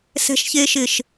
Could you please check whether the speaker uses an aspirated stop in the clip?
no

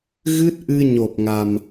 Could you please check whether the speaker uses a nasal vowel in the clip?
no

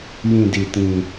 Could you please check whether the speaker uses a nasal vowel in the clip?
yes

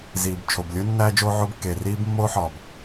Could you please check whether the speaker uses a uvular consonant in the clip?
no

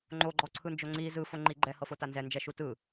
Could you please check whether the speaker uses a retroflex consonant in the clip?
no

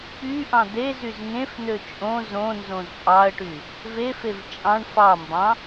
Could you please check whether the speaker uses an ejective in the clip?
yes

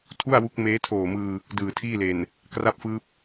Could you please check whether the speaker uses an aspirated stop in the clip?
yes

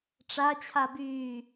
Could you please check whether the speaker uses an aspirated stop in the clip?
yes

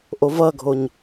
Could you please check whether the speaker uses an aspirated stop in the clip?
no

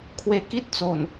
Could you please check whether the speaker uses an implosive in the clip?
no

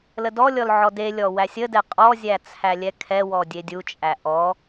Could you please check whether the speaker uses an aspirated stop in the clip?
yes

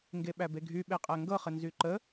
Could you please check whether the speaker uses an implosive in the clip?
yes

